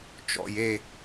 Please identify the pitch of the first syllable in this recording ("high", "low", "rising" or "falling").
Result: low